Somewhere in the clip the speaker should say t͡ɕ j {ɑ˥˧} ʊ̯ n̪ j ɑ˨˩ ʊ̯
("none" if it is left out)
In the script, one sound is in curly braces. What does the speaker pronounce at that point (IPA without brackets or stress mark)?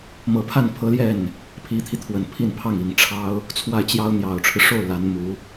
ɑ˥